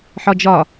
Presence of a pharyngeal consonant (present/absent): present